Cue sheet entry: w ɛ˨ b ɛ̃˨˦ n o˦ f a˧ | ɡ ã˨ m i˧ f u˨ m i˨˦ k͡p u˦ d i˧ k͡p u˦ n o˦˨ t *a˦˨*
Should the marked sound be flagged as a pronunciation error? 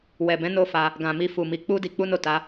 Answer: yes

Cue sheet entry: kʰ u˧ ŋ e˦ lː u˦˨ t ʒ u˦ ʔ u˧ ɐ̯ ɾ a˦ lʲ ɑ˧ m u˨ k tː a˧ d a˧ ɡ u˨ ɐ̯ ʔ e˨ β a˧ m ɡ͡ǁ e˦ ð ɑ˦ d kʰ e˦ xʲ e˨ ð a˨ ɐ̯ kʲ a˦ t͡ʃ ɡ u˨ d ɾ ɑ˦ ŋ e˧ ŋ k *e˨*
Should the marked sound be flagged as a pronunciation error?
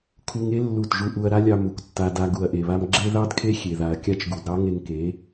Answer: yes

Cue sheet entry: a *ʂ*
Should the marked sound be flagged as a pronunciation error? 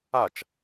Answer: yes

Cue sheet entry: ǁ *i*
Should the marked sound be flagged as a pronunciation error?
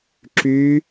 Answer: yes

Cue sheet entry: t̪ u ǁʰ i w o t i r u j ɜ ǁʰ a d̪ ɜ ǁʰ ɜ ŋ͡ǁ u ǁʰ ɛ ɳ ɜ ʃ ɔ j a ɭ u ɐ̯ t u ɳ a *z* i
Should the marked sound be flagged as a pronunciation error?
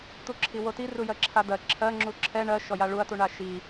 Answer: yes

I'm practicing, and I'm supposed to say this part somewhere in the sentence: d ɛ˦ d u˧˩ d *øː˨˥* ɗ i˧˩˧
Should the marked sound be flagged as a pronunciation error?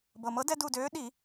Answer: no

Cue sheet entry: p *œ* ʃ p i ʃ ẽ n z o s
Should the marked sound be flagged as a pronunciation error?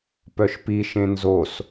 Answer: no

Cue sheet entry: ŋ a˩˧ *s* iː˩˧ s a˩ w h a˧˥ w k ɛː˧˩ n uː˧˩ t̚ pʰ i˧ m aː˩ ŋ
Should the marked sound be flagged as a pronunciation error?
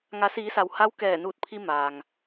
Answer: no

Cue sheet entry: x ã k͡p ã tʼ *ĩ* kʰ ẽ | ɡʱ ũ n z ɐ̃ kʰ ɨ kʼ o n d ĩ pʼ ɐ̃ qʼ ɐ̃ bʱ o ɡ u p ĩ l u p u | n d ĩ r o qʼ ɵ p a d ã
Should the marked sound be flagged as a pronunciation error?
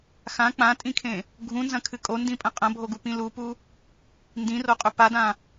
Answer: no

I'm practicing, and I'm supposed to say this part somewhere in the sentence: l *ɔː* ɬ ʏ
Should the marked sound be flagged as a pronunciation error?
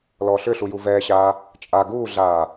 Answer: no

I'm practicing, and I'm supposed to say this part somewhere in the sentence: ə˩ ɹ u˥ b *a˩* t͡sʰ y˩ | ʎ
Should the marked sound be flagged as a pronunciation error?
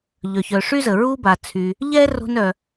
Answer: no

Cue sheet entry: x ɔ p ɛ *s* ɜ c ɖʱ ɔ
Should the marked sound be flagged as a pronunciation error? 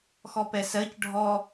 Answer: no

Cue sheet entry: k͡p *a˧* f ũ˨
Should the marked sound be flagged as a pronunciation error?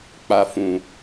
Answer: no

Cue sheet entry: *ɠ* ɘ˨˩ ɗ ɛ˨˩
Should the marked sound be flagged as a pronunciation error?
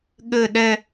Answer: no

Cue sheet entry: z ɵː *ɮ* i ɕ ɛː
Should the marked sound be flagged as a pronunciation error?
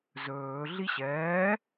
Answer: no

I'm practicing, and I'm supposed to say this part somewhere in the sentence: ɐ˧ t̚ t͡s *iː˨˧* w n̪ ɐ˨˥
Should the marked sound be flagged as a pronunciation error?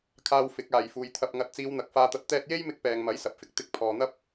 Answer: no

